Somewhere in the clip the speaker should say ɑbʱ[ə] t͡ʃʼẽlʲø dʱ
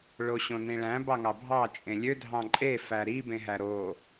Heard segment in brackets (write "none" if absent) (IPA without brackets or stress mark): ɑ